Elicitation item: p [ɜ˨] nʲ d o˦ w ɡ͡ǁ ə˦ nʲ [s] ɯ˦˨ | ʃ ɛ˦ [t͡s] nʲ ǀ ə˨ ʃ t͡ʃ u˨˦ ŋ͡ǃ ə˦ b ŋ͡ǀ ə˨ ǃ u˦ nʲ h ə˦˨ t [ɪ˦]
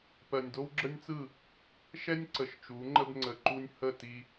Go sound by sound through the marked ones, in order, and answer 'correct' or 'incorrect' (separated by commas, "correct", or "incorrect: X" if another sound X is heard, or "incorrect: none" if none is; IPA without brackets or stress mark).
correct, incorrect: t͡s, incorrect: none, incorrect: i˦